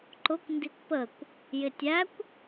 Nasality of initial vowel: oral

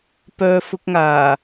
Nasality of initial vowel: oral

